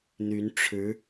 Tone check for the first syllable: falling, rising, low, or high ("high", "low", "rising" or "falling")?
rising